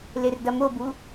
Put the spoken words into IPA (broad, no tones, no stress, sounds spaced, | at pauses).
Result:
l e r d ɐ m o b u